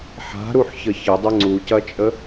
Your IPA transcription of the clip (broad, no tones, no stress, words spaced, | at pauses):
ħa̤ɾuħçə çədˤə ŋ͡ǀucɐt͡ʃʼə